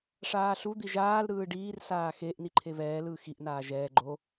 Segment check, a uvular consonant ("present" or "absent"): absent